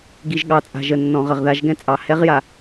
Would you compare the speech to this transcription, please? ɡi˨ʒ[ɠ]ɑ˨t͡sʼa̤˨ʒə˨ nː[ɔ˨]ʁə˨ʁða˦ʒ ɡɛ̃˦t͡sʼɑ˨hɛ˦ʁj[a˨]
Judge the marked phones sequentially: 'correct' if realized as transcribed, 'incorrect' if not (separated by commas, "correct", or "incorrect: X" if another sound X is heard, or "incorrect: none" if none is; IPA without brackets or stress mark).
correct, incorrect: ɔ̃˨, correct